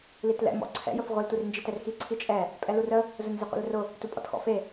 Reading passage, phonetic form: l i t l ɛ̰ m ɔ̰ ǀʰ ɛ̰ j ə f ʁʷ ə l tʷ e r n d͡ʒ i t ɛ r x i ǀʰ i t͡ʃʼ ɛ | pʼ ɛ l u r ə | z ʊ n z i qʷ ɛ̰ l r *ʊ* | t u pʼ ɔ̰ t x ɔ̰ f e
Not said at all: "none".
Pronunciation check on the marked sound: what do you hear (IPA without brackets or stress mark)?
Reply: ʊ